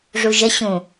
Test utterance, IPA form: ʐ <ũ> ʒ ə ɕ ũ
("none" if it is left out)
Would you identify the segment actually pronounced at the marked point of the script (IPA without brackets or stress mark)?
u